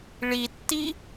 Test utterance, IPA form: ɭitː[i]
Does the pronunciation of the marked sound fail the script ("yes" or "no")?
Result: no